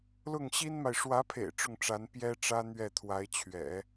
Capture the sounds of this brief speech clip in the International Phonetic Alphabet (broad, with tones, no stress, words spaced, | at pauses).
lʊ˥˩ŋɕi˥nma˨ɪ̯ ʂwä˧˥pʰḛ˨˩ɪ̯ ʈ͡ʂʊ˥˩ŋʈ͡ʂa˧˥n pjɛ˥ʈ͡ʂä˥ n̪ɥɛ˥˩t̪ʰwa˧˥ɪ̯ t͡ɕʰɥɛ̰˨˩˦